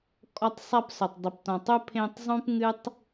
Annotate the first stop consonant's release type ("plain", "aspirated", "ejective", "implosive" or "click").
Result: ejective